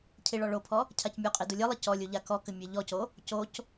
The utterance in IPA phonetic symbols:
cʰ i ɭ ɔ ɭ o pʰ ɔ | cʰ a c mʲ u qʼ i d u lʲ ɘ lˠ ɘ c ɔ lʲ u ʎ a k ɔ k ɘ mʲ e ʎ ɔ c o | c o c

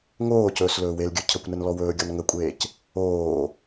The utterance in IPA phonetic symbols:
ŋ oː c ɵː s l ɵː w e l ɡʲ ɵ cʰ ə kʷ n ə n l ɔ w ɵː ɡʲ ɔ n ŋ ə kʷʼ eː c | oː

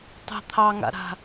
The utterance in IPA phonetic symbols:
tˤ ə̤ t̪ʰ ɑ ŋ a̰ ɾ a̤

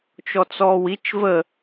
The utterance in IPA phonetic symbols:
t͡ʃ ɔ t͡s ɔː w i t͡ʃ v ə

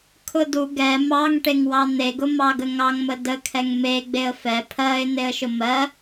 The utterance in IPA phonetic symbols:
kʰ ʊ d u ɡ ɛ m ɑ ŋ ʈ e ŋ w ɑ n̪ e ɡ ʊ m ɑ ɡ ə ŋ ɑ ŋ m ə d ə kʰ ɛ ŋ m e ɡ͡b e ə̯ f ɛ pʰ ɜ ɪ̯ n̪ e ə̯ ʃ ʊ m ɜ

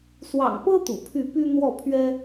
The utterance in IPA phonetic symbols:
s w ɑ̰˨˩ ŋ p ɤ˦ t̪ ṵ˨˩ pʰ y˥˨ p y˦ n̪ w ɔ˥˨ pʰ ɥ ɛ˦

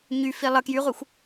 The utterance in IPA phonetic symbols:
ɲ y f i lˠ ə k j y ʁʷ i xʷ

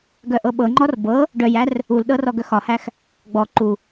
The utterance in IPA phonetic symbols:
ɡ œ ʔ ɤ ɓ ɤ ŋ͡ǃ ɔ r b ɤ | ɖ œ j æ r | u l ɗ ɤ r ɔ ɡ œ x ɒ h æ x | ɡ͡b ɔ ǃ u

